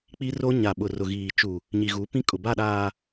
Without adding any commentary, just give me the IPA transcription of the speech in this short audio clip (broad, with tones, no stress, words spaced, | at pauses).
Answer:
k͡pi˦ro˦ ɲa˨ɓʊ˨ rʊ˨ɣiː˨t͡ʃu˨ | ɲi˨ɣu˨˦pĩ˦kʼʊ˨ ba˦˨ɗaː˨